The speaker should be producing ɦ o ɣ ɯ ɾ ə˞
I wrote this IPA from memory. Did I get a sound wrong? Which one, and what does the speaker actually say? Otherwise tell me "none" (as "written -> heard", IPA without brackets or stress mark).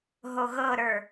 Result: ɯ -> ɤ